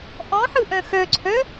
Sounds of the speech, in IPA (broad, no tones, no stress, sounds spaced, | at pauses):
ʔ ɔ̃ ħ ɯ ʔ œ̃ x œ ǀʰ œ